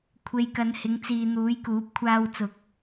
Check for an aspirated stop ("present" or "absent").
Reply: present